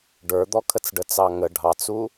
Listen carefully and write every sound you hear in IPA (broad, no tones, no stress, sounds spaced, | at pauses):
ɖ ə˞ d̪ ɔ kʰ ə t͡s ɖ ə t͡s ɑ ŋ ə ɖʱ ɑ t͡s u